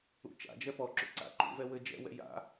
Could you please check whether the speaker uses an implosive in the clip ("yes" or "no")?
no